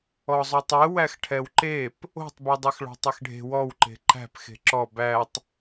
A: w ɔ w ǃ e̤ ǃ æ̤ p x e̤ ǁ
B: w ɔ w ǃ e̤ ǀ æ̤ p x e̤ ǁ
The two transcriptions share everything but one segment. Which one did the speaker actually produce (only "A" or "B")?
A